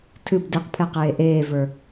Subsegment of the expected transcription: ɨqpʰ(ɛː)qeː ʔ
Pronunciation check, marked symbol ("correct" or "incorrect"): incorrect